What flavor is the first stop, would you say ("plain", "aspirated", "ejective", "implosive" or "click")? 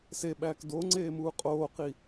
implosive